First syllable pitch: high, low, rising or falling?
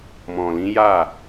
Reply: low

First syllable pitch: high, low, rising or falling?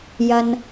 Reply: low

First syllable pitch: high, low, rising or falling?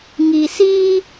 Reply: low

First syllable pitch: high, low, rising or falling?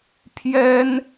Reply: high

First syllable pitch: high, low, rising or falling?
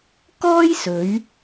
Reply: high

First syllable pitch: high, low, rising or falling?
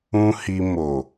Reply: high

